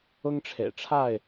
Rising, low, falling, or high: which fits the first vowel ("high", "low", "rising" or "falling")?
high